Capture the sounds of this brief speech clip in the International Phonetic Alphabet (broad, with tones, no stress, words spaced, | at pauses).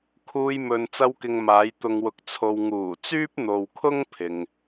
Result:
kʰuː˧jmɵ˨n t͡sɐ˧wkɪ˨ŋ maː˨˧j t̪ʊ˨ŋwʊ˨k̚t͡sʰo˨w ŋuː˨˩t͡syː˥p̚n̪o˨wkʰʊ˥ŋ pʰɪ˨ŋ